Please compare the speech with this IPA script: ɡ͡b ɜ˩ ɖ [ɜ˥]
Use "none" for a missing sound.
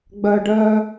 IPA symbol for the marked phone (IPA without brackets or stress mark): ɜ˨